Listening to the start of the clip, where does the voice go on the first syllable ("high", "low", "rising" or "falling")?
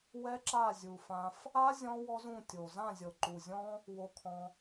high